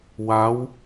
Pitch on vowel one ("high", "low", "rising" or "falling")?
rising